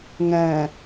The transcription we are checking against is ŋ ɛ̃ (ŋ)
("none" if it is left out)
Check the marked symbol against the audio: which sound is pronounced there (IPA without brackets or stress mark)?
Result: none